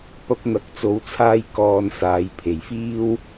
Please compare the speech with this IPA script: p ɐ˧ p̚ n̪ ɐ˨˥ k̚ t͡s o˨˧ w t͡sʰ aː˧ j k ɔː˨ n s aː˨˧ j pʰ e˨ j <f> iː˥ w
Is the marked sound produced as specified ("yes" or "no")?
yes